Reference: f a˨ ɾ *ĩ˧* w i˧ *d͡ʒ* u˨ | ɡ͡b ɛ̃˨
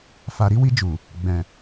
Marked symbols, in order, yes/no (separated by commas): no, yes